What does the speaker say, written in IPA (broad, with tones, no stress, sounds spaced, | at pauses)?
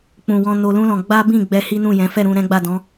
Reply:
k͡p ũ˨ w ɔ̃˧ n o˧ l ũ˦ l ɔ̃˧ ɡ͡b a˦ b ĩ˦˨ ɡ͡b ɛ˧ h i˦ n ũ˦˨ j ɛ̃˨˦ f ɛ˦˨ ɾ ũ˧ ɾ ɛ̃˦ ɡ͡b a˦˨ d ɔ̃˨˦